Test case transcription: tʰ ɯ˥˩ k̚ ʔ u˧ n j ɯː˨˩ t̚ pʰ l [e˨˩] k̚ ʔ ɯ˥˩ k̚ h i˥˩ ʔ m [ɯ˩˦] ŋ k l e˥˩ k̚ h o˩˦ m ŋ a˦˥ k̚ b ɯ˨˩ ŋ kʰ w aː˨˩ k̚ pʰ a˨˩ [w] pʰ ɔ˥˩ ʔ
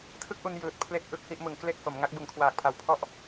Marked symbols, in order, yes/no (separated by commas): no, yes, yes